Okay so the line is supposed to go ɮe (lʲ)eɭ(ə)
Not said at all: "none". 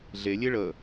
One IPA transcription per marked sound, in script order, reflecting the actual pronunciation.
lʲ, ə

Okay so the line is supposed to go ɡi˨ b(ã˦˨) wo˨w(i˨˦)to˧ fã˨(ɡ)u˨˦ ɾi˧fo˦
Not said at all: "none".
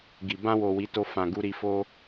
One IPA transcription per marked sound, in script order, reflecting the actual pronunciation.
ã˧, i˨˦, ɡ

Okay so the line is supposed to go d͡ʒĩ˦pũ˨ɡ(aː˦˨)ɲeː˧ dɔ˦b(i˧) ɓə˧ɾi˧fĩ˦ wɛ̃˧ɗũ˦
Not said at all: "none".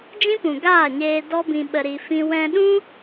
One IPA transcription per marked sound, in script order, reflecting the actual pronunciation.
aː˦˨, ĩ˧

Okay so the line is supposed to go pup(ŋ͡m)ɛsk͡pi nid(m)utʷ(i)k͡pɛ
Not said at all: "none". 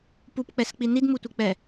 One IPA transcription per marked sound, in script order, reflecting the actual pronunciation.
k͡p, m, i

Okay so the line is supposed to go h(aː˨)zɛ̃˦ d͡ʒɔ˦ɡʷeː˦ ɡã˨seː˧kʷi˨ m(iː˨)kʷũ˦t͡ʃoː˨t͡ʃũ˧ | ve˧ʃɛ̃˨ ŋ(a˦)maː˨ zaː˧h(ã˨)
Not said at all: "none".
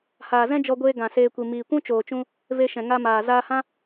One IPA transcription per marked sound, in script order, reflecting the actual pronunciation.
aː˨, iː˨, a˧, ã˦

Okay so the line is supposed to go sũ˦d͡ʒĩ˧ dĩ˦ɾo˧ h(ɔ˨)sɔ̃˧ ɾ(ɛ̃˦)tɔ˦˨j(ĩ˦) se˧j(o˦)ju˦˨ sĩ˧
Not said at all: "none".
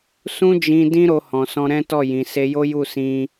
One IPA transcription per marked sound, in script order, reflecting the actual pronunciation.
ɔ̃˨, ɛ̃˦, ĩ˨, o˦

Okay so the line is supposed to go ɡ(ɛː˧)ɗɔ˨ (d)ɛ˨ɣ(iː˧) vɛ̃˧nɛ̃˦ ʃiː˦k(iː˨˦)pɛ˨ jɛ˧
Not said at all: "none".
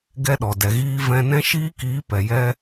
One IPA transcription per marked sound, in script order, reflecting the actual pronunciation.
ɛ˧, d, iː˧, iː˨˦

